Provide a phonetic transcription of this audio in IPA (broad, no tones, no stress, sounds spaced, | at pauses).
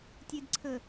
tʲ e d ǀʰ ə